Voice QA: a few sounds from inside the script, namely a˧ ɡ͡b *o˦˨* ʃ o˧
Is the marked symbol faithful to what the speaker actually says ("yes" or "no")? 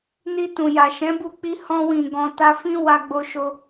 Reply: no